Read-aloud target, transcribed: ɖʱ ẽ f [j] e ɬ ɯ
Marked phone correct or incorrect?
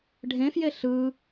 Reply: correct